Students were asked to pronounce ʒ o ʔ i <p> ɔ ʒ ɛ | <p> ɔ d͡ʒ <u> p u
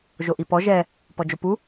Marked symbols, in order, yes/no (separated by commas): yes, yes, no